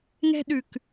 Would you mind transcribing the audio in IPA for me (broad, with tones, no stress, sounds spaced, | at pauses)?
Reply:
ŋ ɛ̤˦ ɗ ʉ˨ k